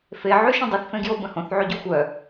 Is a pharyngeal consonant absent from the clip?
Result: no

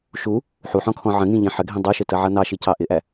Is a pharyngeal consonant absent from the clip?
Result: no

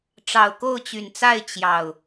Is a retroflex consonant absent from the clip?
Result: no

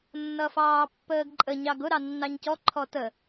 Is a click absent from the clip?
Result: no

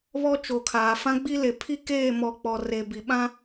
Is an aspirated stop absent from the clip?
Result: no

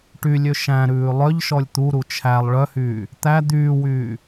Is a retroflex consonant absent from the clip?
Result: no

